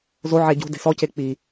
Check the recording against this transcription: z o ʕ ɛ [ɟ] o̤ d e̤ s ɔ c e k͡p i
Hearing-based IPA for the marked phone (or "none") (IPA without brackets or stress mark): ɟ